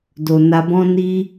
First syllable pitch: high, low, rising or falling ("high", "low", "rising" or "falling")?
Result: low